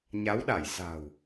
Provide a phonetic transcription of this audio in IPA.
ɲ a˨˦ w ɗ a˧˩ j s a̤˨˩ w

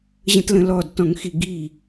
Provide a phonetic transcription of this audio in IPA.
ʑ ə̃ t l ə̃ l ɔ d t ɔ̃ ŋ x i ɡ i

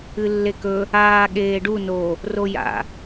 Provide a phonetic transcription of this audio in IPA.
ɨ lː e k ɵ | aː ɠ eː ɖ u n o | r o j a̰

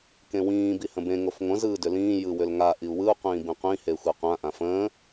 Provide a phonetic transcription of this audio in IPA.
k ẽ w ĩː b i h ə̃ b ẽ ŋ o f ŋʷ ə̃ z ɯː d ʏ l ĩː j ɯ w ʏ l ŋ a ʔ i u̯ w ɯ u̯ qʷ ĩː b ĩ qʷ ĩ h e xʷ e qʷ ã ʔ ã f ə̃ː

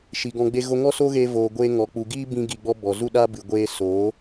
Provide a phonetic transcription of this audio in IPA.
ʃ i˨ ɡ ɔ̃˧ ɡ͡b e˦ ɣ o˦ ŋ ɔ˦ s o˦ ɣ eː˧ v oː˨ ɡʷ eː˧ ŋ ɔ˨ k͡p u˨ ɡ iː˦ b ĩ˦ ɡ i˧ ɡ͡b ɔ˦ b ɔ˨ z u˦ ɗ aː˦ b ɨ˨ ɡʷ eː˧ s oː˨˦

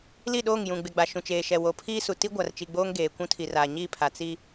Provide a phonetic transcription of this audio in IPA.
l i˦˨ ɗ oː˦˨ ŋ j ũ˨ ɡ͡b ɪ˨ ɡ͡b a˨ ʃ ũ˨ t͡ʃ eː˨ ʃ ɛ˨ w o˨ pʰ iː˦ s u˨ t i˦ ɡʷ a˨ r t͡ʃ i˨ ɡ͡b oː˦ ŋ ɡ eː˨ kʷ ũ˦ tʰ i˨ r a˨ ɲ i˦˨ pʰ a˨ t͡s i˦

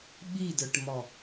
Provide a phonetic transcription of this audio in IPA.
ɓ i d ə˞ ʈ m ɔ

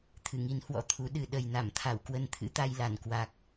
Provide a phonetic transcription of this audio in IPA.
t̪ʰ ɨ˧˩ ŋ i˨˦ n h w ɔ̰˧˥ t̪ʰ u˨˦ ɗ ɨ˨˩ ɗ ə˨˩ j n a˧˩ m t̪ʰ a˧˩ w k w ə˧ n t̪ʰ ɨ̰˧˥ t̪ a˧ j l a˧˩ n k w a˨˩ k̚

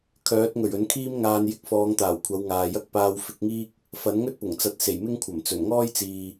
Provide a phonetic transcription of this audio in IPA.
kʰ œː˨˥ t̚ ŋ ɵ˨˩ ɥ ɵ˨˥ n kʰ iː˥ m ŋ aː˧ n j ɪ˨˥ k̚ f ɔː˨˧ ŋ t̪ aː˨˩ w kʷʰ ɐ˨˧ w ŋ aː˨ j ɐ˥ k̚ p aː˧ w f ɪ˨˥ k̚ ŋ iː˥ k̚ | f ɐ˨˥ n ŋ ɵ˥ t̚ p ʊ˨˩ ŋ t͡s ɐ˧ t̚ s e˨˩ j m ɪ˥ ŋ kʷʰ ɐ˨˩ m t͡s ɵ˨˩ n ŋ ɔː˥ j t͡s iː˨

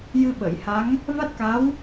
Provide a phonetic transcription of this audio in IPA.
j ɨ˧ ɓ ə˨˩˨ j h a˧˥ ŋ | v a˦˥ t̚ k a˧˥ w

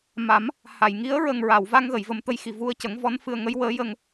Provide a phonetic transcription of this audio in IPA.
m a˨˩˦ m | h a˨˩˨ j ŋ i˧˥ ə̯ ɹ ə˨˩ ŋ ɹ a˨˩˨ w v a˧ ŋ ɣ ə˨˩˨ j v ə˨˩ m t̪ ə˧ j x i˨˩ v u˧ ə̯ c ə˨˩˦ ŋ v ɔ˧˥ n f ɨ˧ ə̯ ŋ ə˧˥ j w əː˧˥ j ə˧ ŋ

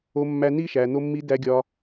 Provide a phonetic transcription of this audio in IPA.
o˧ mː æ˧ n i˦ ʃ æ˧ n̪ o˧ mː i˧ d æ˧ ɡʲ ɒ˧

